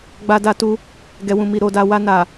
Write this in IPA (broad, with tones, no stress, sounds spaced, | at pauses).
ɡ͡b a˧ d a˧ t u˧ | ɡ ɛ˨ w ũ˨ m i˨ ɾ o˨ d a˨ w a˧ n a˨